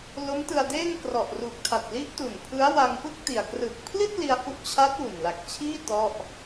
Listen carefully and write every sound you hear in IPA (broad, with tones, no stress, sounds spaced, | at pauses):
l o˦˥ m t ɯ˧ a̯ d eː˥˩ ŋ k r ɔ˨˩ ʔ r u˨˩ k̚ tʰ a˨˩ t̚ l i˦˥ ʔ t u˨˩ n pʰ ɯ˦˥ a̯ w a˧ ŋ p ɯ˥˩ k̚ t i˨˩ a̯ k r ɯ˨˩ k̚ pʰ l i˥˩ t̚ l i˧ a̯ h u˦˥ ʔ t͡ɕʰ aː˦˥ t̚ w u˨˩ n l a˨˩ k̚ t͡ɕʰ iː˥˩ t ɔ˥˩ ʔ